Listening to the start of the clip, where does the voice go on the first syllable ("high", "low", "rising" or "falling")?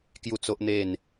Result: falling